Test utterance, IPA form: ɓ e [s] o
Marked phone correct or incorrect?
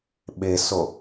correct